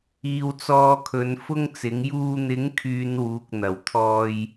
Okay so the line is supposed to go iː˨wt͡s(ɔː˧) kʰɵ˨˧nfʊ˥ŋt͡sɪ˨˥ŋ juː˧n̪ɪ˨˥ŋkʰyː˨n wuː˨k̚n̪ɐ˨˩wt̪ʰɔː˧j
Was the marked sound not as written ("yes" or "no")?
no